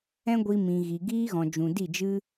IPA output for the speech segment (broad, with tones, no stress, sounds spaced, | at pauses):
ɛ̃˦ ɡʷ i˧ m ĩ˨ ɣ i˨ ɡ iː˦ ɣ ɔ̃˨ d͡ʒ ũ˨ d i˦˨ d͡ʒ ɨ˦